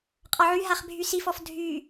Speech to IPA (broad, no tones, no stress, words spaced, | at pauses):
qʼɒʕy ɦaχbʱysifɔf dʱy